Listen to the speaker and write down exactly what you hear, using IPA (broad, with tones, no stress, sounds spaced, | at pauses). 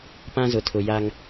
p ã˦ z ʊ˨ tʰ ʊ˨ j a˦ ŋ